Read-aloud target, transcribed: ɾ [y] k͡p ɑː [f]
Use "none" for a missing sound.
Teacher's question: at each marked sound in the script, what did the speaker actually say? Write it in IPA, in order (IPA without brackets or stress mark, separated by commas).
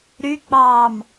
y, m